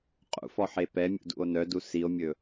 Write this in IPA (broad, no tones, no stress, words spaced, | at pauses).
qʼṵfɔħe pɛmʲṵdṵo̯ nœdu sio̯mʲɵ